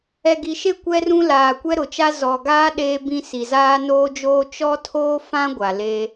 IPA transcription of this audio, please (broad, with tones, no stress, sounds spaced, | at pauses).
ɛ˨ ɡ i˨ ʃ e˦ kʷ ɛ˦ r ũ˦ l aː˨ kʷ ɛ˦ ɾ ʊ˨ t͡ʃ a˦ z ɔ˨ ɡ aː˦ ɗ eː˦ b ĩ˦ s i˨ z aː˦ n oː˦ d͡ʒ oː˦ t͡ʃ ɔ˦ tʰ oː˦ f ã˦ ɡʷ a˨ l e˦